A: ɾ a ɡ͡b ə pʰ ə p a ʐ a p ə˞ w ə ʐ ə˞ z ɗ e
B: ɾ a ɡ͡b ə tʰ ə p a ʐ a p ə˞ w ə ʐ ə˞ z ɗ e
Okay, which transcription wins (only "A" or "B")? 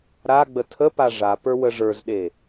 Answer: B